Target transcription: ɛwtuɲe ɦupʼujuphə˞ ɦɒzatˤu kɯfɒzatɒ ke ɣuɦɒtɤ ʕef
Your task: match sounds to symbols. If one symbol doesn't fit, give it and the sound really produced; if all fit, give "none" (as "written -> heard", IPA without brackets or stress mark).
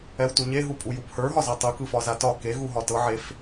none